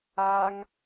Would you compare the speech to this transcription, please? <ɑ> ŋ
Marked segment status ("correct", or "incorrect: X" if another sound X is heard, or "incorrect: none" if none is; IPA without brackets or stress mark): incorrect: a